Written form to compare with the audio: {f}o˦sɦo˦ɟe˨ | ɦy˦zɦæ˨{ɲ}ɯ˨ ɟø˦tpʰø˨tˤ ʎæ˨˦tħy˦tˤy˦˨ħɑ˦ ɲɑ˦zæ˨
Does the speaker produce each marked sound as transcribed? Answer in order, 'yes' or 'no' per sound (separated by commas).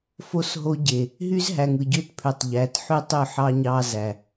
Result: yes, no